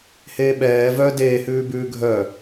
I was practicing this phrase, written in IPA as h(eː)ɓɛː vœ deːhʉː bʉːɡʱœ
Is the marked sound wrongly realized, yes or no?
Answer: no